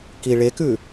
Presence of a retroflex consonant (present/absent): present